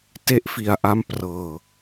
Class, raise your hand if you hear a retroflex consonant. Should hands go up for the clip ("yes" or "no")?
no